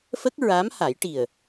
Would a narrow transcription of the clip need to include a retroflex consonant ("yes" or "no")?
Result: yes